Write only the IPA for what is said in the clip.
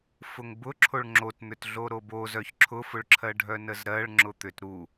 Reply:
fʊŋbʊ ǁʰoɭŋ͡ǁotn̪ʏt ɮoɾobozœç ǁʰʊfʊɭǁʰɜɖʱœ nəzɾɜɭ ŋ͡ǁʊt̪ʏt ɾu

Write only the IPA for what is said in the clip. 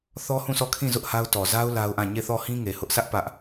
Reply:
θɔ˦hũ˦˨sɔ˦˨kʰĩ˦˨ zʊ˦ʔha˦ʊ̯ tɔ˨za˦ʊ̯ la˦ʊ̯ʔã˦˨ ɲe˦˨θɔ˦˨ hĩ˦ŋe˨hʊ˦ʔsä˦ʔ pä˦ʔ

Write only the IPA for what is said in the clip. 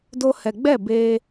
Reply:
do˧hɛ˨ɡ͡bɛ˦˨ beː˦

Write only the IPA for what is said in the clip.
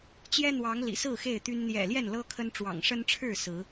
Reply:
t͡ɕjɛ˦ n̪wɑ˨˦ŋlḭ˨˩sɹ̩˥˨ xe˥˨ɪ̯t̪y˦n n̪jɛ̰˨˩ljɛ˥˨nlɤ˦ kʰə˦n ʈ͡ʂwɑ̰˨˩ŋʂə˦nʈ͡ʂʰɻ̩˥˨ sɹ̩˨˦

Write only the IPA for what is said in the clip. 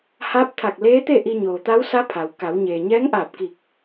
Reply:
haː˧˥p̚t̪ʰa˧˩k̚ leː˧˥t̪e˥˨ʔi˧ ɲoː˩t̪a˧˥wsa˧˥ pʰa˩w ka˩˧wɲeː˩ ɲɛː˧˥ŋʔaː˧˩p̚ki˧˩k̚

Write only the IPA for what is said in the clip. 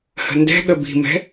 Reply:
hə̤ndɛ̤ɠə bi̤mɛ̤

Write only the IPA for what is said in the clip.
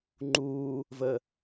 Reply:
ŋ͡ǃuː | və

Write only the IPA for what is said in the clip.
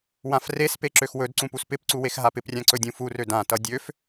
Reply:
wãfrespe ǁøxwɵdǀũ puspɪpǀu wexɦapɪprʲã ǀɵdʲũfurø dãtʌ dʲøf

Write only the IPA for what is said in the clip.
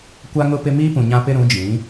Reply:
kʷa˦ŋʊ˦pɪ˦ miː˦pũ˨ɲã˦pɪ˦ ɾũ˨˦d͡ʒĩ˨˦

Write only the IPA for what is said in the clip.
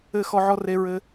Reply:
ɘ˦˨ xɔ˦ʕɔ˦re˦ɹɘ˦

